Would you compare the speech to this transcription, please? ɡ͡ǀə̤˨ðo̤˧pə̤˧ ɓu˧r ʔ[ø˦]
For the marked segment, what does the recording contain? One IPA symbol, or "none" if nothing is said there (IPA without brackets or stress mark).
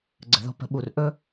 ɵ˦